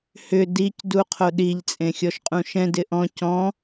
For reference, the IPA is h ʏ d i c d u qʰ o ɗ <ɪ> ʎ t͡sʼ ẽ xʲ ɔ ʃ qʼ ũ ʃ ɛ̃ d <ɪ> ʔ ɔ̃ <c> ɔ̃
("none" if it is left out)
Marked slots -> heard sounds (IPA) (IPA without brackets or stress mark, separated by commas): i, ɪ, c